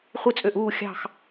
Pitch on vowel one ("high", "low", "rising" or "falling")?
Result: falling